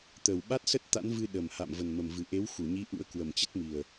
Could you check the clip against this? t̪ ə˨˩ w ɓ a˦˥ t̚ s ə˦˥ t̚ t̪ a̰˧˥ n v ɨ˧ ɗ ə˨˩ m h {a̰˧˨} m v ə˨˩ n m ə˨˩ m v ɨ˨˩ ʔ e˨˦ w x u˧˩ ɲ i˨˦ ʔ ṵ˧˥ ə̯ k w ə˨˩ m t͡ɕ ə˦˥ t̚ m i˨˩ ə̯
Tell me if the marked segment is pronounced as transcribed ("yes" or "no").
yes